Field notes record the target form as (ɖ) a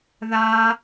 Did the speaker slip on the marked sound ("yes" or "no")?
yes